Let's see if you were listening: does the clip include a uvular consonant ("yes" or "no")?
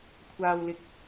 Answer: no